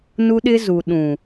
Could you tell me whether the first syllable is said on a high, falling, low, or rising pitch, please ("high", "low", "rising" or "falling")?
high